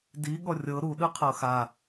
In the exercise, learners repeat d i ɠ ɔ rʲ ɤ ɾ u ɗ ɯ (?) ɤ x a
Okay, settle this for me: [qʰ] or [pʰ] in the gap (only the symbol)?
qʰ